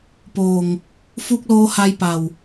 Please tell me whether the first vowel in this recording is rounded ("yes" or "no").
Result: yes